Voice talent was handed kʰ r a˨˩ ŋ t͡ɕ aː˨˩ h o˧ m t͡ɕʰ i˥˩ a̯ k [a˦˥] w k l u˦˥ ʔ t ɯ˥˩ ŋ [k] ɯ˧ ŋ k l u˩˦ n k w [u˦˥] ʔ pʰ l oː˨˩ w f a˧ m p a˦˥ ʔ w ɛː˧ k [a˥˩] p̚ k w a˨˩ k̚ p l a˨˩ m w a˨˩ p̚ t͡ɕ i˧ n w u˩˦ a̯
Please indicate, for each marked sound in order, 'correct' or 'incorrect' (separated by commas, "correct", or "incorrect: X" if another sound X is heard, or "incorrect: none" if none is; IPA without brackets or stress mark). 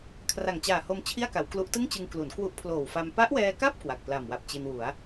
incorrect: a˩˦, incorrect: t͡ɕ, correct, correct